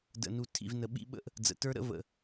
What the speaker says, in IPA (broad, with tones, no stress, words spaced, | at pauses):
də̰˨nu˨tʰḭ˨v nə˨ɓḭ˦ ɓə̰˦ʔ | d͡zə̰˨tə˞˦ ɾə̰˦və̰˨